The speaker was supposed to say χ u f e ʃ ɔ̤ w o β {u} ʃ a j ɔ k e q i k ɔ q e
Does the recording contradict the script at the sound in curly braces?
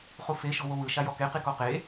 yes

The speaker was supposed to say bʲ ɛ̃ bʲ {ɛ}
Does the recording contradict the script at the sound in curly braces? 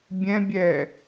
no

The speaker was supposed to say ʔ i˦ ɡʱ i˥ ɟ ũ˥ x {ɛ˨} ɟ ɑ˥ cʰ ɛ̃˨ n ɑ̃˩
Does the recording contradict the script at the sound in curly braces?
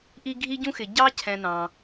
yes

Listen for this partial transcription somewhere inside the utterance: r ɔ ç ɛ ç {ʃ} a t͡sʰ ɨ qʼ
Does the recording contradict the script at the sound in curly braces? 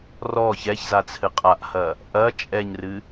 yes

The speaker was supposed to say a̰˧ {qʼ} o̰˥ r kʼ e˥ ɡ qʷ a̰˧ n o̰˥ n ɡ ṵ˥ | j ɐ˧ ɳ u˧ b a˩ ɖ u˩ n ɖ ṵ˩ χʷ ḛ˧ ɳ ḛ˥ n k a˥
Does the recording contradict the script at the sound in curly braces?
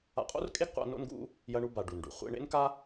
no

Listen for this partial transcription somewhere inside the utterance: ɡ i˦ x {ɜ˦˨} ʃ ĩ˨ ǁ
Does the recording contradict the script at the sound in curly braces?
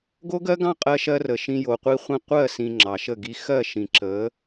no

